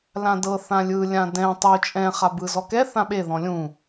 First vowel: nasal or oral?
nasal